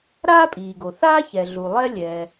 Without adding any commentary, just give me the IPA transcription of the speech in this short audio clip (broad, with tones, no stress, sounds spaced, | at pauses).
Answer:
ɾ aː˥ pʼ iː˩ ɡ o˩ θ aː˥ ç ɛ˩ ɮ u˩ lˠ ɛ˥ lʲ ɛː˩